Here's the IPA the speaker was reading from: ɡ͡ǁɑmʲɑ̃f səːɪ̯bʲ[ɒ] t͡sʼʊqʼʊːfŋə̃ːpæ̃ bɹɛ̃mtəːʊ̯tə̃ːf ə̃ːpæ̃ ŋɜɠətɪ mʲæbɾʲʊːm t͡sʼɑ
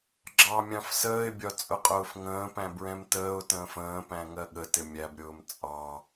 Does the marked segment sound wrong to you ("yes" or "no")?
no